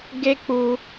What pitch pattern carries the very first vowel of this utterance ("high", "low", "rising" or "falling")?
high